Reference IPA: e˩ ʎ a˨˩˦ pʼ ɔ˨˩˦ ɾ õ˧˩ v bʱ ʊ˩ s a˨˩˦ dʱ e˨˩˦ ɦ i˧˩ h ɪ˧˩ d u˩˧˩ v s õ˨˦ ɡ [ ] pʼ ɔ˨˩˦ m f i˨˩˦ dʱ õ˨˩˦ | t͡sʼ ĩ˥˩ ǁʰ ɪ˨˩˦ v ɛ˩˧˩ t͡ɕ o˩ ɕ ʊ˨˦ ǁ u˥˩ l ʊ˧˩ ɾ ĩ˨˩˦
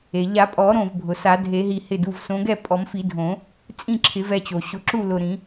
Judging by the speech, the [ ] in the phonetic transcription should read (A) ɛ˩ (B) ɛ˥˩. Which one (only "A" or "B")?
B